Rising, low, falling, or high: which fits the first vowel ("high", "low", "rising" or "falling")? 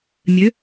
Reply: rising